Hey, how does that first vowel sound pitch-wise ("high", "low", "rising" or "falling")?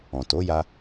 low